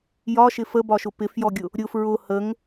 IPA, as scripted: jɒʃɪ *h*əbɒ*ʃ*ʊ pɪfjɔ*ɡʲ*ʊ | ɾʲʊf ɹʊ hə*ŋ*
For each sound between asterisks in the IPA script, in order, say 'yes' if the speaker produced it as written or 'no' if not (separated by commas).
no, yes, yes, yes